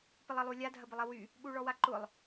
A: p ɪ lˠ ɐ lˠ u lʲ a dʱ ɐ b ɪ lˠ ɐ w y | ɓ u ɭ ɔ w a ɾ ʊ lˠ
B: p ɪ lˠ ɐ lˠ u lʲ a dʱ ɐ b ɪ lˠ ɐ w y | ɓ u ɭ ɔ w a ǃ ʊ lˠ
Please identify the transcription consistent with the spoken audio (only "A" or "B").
B